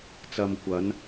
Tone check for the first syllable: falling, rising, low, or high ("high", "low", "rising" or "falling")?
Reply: low